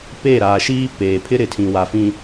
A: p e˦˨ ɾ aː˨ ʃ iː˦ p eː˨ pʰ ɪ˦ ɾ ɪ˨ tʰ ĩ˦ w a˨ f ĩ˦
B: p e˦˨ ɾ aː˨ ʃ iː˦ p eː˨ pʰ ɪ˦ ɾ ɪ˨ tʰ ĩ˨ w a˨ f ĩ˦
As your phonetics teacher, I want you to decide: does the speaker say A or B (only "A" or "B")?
B